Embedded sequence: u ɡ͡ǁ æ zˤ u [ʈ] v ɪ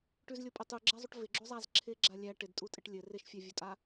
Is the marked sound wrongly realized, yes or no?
no